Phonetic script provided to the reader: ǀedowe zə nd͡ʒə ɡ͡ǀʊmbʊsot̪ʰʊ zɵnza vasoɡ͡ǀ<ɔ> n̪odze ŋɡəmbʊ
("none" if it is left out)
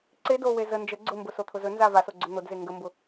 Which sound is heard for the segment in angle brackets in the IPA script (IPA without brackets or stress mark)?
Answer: ɵ